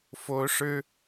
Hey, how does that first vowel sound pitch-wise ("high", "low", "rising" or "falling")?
high